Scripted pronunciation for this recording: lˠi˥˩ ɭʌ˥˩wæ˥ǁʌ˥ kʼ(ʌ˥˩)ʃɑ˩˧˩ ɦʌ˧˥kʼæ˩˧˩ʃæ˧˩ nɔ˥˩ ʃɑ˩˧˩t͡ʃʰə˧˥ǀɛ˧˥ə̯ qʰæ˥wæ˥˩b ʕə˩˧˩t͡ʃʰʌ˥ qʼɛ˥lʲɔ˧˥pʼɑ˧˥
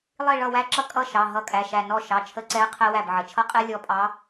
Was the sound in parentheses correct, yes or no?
yes